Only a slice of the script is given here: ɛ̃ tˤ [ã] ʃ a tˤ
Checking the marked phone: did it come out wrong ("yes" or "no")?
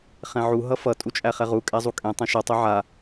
no